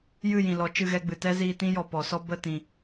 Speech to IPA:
j ɨ˦˨ j ĩ˨ l ɔ˨˦ t͡ʃ ɨ˧ ɣ ɛ˧ ɡ͡b ɨ˨ t ɛ˦ z iː˦ t ĩ˦ j ɔ˨ p ɔ˨ s ɔ˦ b ə˦˨ t ĩ˨

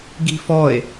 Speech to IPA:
ɡ i̤ f ɔ e̯

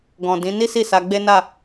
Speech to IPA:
ɡ ɔ̃˨ d ĩ˨˦ n i˦ s i˦˨ s a˧ ɡ͡b e˦ n a˦˨

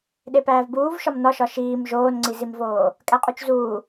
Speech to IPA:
ɗ e p æː v b uː v ʃ ɒ m n ɒ ʃ ɒ ʃ iː m ʒ oː n ŋ͡ǀ i z i m v oː | kʼ æ qʼ u t͡ʃ z uː

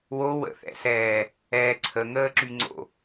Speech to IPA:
w o w ə̰ θ ɛ̰ s ɛː | ɛː ǀʰ ə ŋ əː ǁ y ŋ͡ǀ o̰

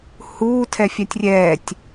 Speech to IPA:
h uː tʰ ɛ fʲ æ tʲ rʲ ɛː tʲ

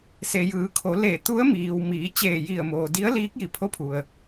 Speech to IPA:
s e˩ j ɯː˩˧ kʰ o˩˧ l e˧˩ t̪ u˧˥ ə̯ m iː˩ w m iː˩˧ t͡ɕ eː˧˩ j i˧˩ ə̯ m oː˩ d i˧˥ ə̯ l iː˧˥ k̚ j i˧˩ pʰ o˧˥ pʰ u˩ ə̯

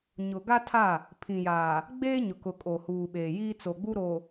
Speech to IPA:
ɲ ʊ˨ ɡ a˦ tʰ a˦˨ | pʰ ĩ˨ j aː˨ | ɡ͡b eː˦ ɲ ʊ˨ k ʊ˨ kʼ o˨ h uː˨ ɓ eː˨ j iː˦ t͡s o˨ ɡ͡b u˦ ɾ o˨

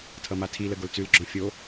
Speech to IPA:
tʰ ʌ m a tʰ i l ə ɡ o l t͡s ʉ l ɡ͡ǁ ɔ̃ fʲ o

